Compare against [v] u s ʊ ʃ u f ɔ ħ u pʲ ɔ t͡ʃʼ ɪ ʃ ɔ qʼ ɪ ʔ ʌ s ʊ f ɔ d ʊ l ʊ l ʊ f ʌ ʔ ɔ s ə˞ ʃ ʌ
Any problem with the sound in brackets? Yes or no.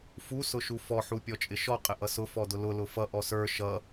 yes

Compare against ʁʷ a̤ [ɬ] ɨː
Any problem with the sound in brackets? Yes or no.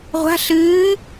no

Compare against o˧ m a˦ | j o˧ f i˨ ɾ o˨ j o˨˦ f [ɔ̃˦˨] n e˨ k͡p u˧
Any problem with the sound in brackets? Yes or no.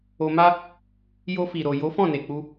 no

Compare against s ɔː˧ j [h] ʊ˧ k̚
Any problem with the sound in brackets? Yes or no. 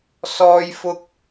yes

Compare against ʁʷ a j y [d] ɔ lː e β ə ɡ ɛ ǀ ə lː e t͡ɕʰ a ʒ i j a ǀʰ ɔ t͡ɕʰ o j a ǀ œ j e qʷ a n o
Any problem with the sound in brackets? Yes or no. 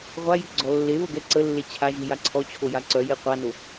yes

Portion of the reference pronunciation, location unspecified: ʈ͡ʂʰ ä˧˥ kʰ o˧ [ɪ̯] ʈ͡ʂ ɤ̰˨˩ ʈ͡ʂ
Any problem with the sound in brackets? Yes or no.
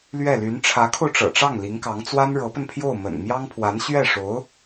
yes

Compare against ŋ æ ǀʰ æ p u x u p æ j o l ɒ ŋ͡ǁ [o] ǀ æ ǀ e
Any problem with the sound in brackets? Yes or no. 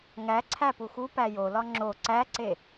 no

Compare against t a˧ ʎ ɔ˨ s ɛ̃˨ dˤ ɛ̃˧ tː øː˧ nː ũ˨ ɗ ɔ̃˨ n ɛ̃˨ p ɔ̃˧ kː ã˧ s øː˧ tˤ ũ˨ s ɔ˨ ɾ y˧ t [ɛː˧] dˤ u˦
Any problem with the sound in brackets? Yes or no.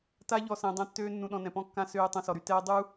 no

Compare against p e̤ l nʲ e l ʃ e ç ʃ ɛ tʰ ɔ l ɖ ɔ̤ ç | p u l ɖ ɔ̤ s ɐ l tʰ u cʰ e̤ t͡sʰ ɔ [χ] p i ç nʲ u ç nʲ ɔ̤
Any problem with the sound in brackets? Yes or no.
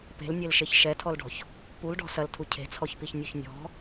yes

